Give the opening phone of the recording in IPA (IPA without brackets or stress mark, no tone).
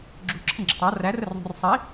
ɡ͡ǁ